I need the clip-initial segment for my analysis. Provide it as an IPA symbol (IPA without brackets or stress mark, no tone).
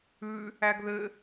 ʉ